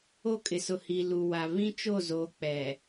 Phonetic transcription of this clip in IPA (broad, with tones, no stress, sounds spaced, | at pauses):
o˦˨ kʼ ɪ˨ s ʊ˨ h i˨ l u˨ w a˨ β ĩ˦ t͡ʃ o˦˨ z oː˨ k͡p ɛ˨